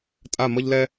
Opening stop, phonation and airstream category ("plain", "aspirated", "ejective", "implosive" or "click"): ejective